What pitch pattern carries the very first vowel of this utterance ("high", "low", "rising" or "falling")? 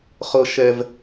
high